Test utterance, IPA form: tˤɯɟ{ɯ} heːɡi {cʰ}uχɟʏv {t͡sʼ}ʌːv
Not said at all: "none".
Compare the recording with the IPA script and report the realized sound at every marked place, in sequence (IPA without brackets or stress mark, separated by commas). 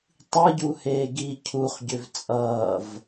u, cʰ, t͡sʼ